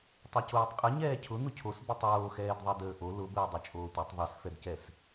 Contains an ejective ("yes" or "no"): yes